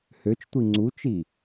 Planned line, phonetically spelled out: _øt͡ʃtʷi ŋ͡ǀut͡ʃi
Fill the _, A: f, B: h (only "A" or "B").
B